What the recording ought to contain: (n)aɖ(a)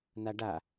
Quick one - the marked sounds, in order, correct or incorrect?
correct, correct

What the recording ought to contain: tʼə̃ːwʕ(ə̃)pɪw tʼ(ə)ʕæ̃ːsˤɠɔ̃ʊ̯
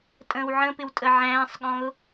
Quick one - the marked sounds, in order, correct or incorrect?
correct, correct

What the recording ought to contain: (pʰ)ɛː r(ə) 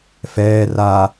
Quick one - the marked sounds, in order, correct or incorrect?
incorrect, incorrect

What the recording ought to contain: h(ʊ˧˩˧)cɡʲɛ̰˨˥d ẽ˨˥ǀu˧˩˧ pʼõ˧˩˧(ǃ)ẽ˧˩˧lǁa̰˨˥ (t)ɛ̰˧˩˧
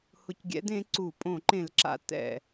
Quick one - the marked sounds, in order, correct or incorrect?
correct, correct, correct

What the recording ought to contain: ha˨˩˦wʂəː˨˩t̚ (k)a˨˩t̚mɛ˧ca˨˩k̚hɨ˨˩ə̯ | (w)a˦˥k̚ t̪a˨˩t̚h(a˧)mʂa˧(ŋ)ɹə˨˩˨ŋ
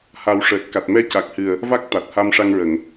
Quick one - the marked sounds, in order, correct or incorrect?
correct, incorrect, correct, correct

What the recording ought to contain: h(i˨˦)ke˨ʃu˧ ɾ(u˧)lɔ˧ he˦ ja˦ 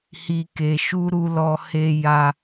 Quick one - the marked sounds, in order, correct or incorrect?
incorrect, correct

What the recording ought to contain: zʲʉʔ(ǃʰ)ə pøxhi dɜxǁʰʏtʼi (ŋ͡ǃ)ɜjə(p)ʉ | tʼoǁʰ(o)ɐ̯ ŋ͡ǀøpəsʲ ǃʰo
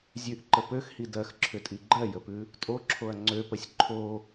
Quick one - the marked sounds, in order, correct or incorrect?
incorrect, incorrect, correct, correct

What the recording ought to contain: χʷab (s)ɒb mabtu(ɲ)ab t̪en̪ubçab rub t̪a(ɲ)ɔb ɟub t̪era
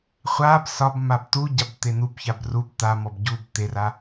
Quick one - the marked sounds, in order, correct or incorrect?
correct, incorrect, incorrect

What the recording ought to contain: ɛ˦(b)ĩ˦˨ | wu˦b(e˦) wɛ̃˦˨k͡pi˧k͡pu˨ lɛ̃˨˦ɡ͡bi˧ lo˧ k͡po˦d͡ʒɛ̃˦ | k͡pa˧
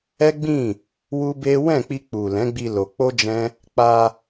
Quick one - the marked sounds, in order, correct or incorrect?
incorrect, correct

